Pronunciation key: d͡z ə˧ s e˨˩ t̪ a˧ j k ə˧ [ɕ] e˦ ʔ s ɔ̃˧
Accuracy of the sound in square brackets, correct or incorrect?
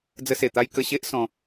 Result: correct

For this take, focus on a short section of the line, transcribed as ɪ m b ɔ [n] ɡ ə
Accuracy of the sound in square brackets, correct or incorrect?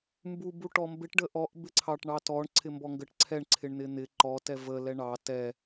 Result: incorrect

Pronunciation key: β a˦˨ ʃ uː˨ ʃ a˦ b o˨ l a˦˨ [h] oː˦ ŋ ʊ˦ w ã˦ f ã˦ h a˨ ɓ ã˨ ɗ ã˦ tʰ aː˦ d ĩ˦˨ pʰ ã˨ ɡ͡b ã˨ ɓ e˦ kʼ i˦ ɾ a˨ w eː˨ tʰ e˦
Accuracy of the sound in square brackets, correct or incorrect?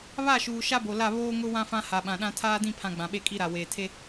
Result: incorrect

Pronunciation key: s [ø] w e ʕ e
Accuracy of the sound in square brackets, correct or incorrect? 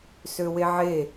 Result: correct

